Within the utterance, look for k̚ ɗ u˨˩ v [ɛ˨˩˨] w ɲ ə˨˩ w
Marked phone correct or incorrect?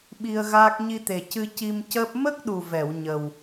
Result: correct